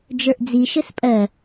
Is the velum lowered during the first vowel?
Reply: no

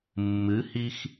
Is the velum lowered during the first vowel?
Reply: no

